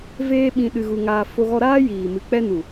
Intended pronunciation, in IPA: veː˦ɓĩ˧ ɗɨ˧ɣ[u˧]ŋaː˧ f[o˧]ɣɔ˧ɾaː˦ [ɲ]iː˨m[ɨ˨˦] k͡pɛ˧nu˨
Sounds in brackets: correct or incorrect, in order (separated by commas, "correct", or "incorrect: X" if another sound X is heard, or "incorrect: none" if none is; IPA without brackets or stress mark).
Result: correct, correct, incorrect: j, incorrect: ɨ˨